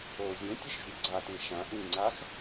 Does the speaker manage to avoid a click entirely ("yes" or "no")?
no